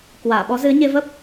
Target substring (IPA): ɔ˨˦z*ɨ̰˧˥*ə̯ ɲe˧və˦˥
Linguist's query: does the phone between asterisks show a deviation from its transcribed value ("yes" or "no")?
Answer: yes